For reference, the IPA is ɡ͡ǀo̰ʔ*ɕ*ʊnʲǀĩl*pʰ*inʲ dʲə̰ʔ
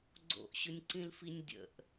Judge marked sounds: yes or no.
yes, no

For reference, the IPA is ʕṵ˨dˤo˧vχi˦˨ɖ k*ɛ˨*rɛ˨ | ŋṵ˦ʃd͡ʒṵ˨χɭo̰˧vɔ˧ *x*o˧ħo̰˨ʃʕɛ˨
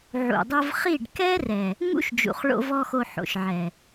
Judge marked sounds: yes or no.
no, yes

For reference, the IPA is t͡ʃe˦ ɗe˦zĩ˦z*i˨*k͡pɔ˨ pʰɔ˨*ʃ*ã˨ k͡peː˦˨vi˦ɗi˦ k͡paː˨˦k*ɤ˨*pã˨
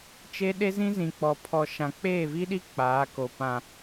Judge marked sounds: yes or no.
no, yes, no

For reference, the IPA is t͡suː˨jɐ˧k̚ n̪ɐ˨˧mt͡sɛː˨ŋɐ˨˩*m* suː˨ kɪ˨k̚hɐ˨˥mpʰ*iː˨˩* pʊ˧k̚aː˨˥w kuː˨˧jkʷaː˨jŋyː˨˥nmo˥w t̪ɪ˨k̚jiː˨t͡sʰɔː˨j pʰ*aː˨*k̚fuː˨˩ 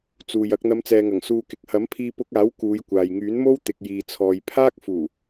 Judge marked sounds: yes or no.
no, no, no

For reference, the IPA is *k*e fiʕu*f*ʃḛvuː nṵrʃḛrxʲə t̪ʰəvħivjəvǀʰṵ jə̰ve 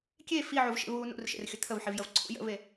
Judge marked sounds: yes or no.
no, no

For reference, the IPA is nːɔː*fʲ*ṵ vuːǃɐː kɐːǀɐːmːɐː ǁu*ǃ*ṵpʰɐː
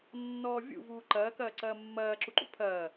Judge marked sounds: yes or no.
no, yes

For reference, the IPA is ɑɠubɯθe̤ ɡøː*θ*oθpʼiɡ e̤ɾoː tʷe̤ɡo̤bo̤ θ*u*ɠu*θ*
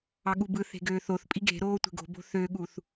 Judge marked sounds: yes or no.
yes, no, yes

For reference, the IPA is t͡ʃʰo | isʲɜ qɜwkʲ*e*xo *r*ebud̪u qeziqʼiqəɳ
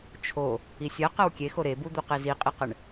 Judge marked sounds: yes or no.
yes, no

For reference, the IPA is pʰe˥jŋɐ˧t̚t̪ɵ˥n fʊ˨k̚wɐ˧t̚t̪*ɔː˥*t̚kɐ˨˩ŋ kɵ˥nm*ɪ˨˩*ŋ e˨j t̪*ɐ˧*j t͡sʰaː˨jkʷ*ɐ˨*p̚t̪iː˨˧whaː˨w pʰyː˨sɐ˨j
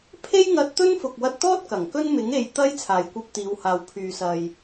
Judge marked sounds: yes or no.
yes, no, yes, no

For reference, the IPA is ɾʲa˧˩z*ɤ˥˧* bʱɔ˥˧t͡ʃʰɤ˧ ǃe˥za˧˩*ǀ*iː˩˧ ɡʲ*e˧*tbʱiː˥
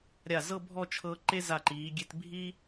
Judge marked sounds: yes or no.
yes, no, yes

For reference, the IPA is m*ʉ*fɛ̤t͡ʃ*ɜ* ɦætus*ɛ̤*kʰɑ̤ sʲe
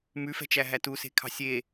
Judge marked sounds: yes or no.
yes, no, no

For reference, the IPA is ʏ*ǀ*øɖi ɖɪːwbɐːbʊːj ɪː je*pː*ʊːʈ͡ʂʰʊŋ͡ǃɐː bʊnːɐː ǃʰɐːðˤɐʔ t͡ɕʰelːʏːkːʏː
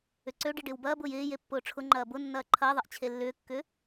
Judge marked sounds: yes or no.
yes, yes

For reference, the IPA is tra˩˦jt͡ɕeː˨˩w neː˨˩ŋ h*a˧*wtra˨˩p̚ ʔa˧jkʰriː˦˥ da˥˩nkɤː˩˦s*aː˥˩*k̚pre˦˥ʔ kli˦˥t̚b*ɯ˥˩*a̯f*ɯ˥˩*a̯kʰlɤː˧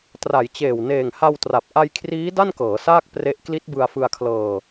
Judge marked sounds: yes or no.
yes, yes, no, no

